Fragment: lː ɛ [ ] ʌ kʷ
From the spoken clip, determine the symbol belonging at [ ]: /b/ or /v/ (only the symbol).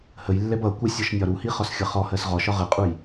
b